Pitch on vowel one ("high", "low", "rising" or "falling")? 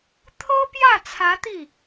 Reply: high